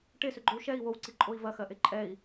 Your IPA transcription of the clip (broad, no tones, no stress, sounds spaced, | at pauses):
ʈ e s ʏ ɡ͡ǃ ʏ u̯ ʃ ɛ i̯ w o w ǀ i ǃʼ o i̯ v ɐ x ɜ ʔ e ǃʼ ɛ i̯